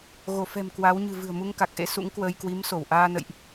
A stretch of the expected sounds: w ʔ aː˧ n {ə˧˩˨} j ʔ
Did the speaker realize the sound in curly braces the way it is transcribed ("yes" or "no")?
no